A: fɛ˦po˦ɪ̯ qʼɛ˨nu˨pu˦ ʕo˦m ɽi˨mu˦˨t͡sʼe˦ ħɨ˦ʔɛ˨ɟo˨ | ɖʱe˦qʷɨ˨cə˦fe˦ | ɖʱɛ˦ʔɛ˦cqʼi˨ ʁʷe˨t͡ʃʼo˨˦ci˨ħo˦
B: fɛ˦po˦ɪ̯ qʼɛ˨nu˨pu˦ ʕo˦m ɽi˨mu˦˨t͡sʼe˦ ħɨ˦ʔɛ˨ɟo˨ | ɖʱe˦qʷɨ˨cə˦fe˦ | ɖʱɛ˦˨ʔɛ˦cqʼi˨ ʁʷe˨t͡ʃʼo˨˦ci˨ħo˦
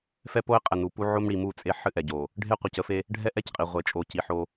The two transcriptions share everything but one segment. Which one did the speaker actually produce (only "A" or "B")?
A